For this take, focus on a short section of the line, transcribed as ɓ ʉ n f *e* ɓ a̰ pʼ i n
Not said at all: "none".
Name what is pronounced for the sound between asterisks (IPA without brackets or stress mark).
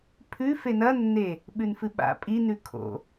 ɨ